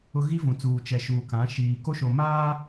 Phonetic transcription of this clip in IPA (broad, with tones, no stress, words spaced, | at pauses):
ʊ˦ ɣi˦vũ˨t͡suː˨ t͡ʃɛ˨ʃuː˨kã˨˦ ʃiː˨ko˦ʃo˨maː˦